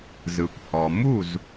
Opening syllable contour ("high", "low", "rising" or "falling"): low